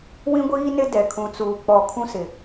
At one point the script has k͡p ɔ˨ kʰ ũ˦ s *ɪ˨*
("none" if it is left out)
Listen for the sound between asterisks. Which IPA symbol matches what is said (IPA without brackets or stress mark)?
ɪ˨